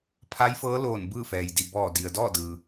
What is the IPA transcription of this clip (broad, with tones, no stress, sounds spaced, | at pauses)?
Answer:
pʰ a˧˥ j f ɤː˧˥ l oː˧˩ n b ɯː˥˨ f ɛː˩ j d i˧˩ b ɔː˧˩ d i˩ ə̯ d ɔː˥˨ d ɯː˩